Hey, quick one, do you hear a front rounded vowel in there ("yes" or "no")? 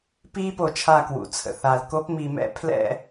no